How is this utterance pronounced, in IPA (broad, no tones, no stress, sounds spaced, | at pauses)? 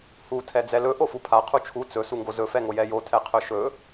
h u tʰ ɛ d͡z ɛ l ɵ ʔ o f u pʰ a qʰ u t͡ʃʰ u t͡s ɵ s u ŋ ɡ o z ɵ f ɛ ŋ o j ɛ j o tʰ ɛ qʰ ɵ ʃ ɵ